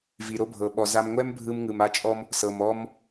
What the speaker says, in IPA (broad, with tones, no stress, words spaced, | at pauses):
vi˩ɾo˧bʱɤ˩ɓɔ˩ za˧mŋʷɛ˥mbʱɯ˧m ŋɯ˩m a˧t͡ʃʼɔ˧m | sɤ˩mɔ˧m